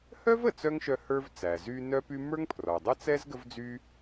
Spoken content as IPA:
h œ˥ v ə˩ t͡s œ˥ ŋ ʃ œ˧ h ə˞˥ v t͡s æ˩ z y˥ n œ˥ p y˥ m ə˞˥ ŋ pʰ r ɔ˩ dˤ ə˥ t͡s ɛ˥ z ɡ ə˥ v d͡z y˥

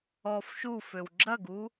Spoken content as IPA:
ɔ f ʃ u f ø w ɡ͡ǁ ɐ ɡ u

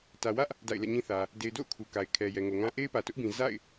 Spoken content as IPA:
t ä˨ w ä˦ ʔ | d a̰˦˨ ɪ̯ l ɛ̰˦˨ ɲ ĩ˦ θ ä˨ | d e˨ ɪ̯ d o̰˦˨ ʊ̯ kʰ u˨ k a˨ ɪ̯ kʰ ɛ˨ j ɛ˨ ŋ o˨ ŋ ã˦ ʔ e˦ ɪ̯ p ä˨ t ʊ˦ ʔ b ĩ˨ z a̰˦˨ ɪ̯

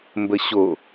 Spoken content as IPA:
m b ə ɕ o

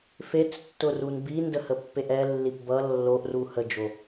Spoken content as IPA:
f e t͡s tː ʊ r u n b i n d ə h ə pː e ʔ ɛ lː i p b ʌ lː o ʔ r u h ə d͡ʒ o

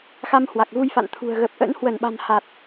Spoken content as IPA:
x a˧ m h w a˨˩ k̚ ɣ u˧ j f a̰˧˨ n t̪ʰ ṳ˨˩ ə̯ ɣ ə˨˩ p̚ ʔ ə̰˧˥ n h w ə˧˩ n ɓ a̤˨˩ n h a˨˩ t̚

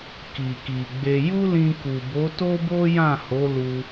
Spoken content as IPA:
k i˨ k i˨ ɡ͡b e˧ j u˦ l ĩ˧ k u˨ b o˨˦ t o˦ b o˦ j ã˦˨ h o˨˦ l u˧

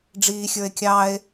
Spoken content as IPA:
ɖ͡ʐ iː xʲ ə˞ e̯ kʲ ɑ e̯

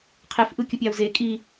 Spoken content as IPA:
qʰ e f ʔ ɯ kʲ ɯ pʲ ɑ u̯ z e kʼ i

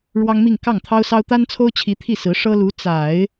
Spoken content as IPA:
ɻ w ɑ˥ ŋ m i˥˧ ŋ k ɑ˥˩ ŋ t̪ʰ ɑ˥ ʊ̯ s ɑ˥ ʊ̯ t̪ a˥ n t͡sʰ o˥ ʊ̯ t͡ɕʰ i˧˥ t̪ʰ i˥˩ s ɹ̩˧˥ ʂ ɤ˥ l u˧˥ t͡s a˨˩˦ ɪ̯

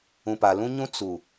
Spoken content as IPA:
ũ˨ p a˨ l ũ˦ ɲ ũ˦ t͡s u˨

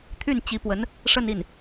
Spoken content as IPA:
t̪ʰ y˥˩ n t͡ɕ i˧˥ p w ə˧˥ n | ʂ ə˥˧ n i˥˩ n

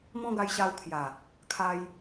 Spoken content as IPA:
m ɔ̃˦ ɡ a˧ j ɕ a˧ w kʰ j a˨˩ | kʰ a˧ j

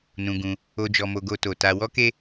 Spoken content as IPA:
n ũ˧ ɡ ũ˧ | o˧ d͡ʒ ɔ˧ m o˧ ɡ o˦ t o˧ t a˧ w ɔ˦ k e˦

